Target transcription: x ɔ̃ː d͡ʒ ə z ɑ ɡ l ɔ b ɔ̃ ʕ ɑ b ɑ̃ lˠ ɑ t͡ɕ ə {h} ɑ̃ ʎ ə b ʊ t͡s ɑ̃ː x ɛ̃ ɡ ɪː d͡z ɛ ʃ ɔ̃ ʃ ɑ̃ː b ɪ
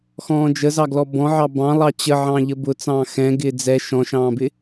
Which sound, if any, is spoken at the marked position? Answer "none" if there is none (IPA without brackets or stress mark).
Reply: ʕ